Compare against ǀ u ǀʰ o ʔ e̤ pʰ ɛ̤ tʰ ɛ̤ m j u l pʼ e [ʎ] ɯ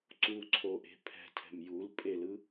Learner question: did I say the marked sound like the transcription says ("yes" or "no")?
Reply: no